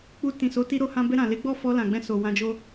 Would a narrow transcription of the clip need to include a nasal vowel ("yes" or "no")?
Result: yes